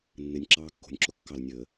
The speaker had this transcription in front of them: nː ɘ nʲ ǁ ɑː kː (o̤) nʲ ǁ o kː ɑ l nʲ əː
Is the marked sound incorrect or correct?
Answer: correct